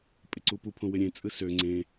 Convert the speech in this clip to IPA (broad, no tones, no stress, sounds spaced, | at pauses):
pʼ ɪ ǀ u p u pʰ õ w ɪ ɾʲ ẽ t͡sʼ ɯ s ø ŋ͡ǀ ẽ